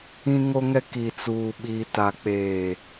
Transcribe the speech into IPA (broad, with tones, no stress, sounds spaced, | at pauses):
ĩ˨ ŋ o˨ ŋ ɛ˨ k i˨ t͡s uː˨ ɓ iː˨ t a˨ k͡p eː˨